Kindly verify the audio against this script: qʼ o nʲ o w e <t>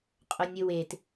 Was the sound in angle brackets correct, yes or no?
yes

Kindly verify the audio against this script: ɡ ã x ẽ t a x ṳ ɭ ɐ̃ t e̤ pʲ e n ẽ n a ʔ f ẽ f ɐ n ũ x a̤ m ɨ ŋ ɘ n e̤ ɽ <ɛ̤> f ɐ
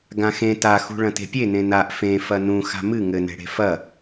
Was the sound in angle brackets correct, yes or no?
no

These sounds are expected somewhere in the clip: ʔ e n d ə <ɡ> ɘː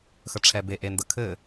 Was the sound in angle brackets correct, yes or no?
no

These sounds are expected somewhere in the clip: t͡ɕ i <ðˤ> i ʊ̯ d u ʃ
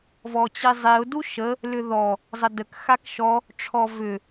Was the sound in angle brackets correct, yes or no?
no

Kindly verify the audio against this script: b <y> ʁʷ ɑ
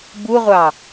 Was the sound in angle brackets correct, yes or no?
no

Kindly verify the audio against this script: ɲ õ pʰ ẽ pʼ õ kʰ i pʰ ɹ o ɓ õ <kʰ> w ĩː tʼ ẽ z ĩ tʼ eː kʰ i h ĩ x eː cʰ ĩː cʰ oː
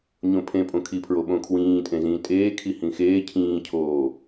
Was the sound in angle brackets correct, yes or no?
yes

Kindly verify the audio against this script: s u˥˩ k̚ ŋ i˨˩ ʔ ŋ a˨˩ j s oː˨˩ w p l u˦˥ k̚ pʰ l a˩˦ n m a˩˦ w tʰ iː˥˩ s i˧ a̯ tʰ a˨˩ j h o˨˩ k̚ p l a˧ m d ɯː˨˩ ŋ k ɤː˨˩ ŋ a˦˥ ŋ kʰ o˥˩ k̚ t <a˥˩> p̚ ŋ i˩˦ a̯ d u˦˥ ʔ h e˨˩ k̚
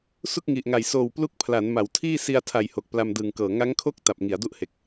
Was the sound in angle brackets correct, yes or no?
no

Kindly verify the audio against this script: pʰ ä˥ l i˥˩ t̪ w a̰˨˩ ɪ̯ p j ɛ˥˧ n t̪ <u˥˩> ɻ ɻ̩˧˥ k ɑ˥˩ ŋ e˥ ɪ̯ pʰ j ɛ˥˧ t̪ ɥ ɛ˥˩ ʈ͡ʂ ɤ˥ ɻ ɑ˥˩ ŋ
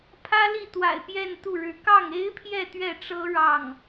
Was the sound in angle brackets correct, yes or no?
yes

